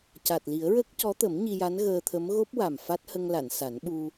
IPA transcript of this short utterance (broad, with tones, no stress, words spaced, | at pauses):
ca˨˩t̚li˨˩˦ə̯ ɹəː˦˥k̚cɔ˧˥t̪ə˨˩˦m ɲi˧ja˧˥n ɣəː˧t̪ʰə˧˥m ɣo˦˥p̚wa˨˩m fa˦˥t̚hə˧ŋla˨˩˨n sa˨˩˦nɓu˧